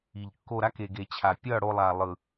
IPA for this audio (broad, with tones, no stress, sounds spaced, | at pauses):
i˨ ʎ kː o˧ ɾ a˦ k e˨ ɡ e˨ t͡ɕʰ a˨ pʲ ʌ˦˨ ɽ o˧ lˠ a˨ lˠ ɯ˨